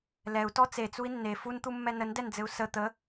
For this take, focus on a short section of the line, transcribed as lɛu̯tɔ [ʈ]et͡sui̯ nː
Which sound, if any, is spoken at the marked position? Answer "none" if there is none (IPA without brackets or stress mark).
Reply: t͡s